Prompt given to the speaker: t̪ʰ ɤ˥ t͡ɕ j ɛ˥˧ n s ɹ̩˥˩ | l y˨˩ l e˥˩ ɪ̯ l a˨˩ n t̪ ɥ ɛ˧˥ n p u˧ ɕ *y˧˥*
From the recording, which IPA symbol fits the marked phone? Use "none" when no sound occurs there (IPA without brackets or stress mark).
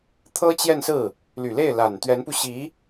i˧˥